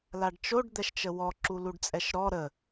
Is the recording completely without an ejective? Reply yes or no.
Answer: no